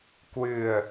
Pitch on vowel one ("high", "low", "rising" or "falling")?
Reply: low